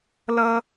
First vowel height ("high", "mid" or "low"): mid